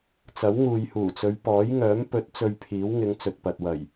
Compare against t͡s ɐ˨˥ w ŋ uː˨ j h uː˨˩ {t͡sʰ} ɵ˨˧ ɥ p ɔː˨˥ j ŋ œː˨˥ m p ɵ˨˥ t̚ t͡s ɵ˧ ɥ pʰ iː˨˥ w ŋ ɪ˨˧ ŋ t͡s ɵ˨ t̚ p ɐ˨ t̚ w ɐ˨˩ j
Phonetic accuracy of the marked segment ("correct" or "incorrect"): incorrect